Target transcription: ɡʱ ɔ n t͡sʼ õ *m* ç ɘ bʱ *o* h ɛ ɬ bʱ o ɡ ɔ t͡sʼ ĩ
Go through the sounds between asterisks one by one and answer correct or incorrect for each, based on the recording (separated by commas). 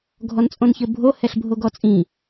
incorrect, correct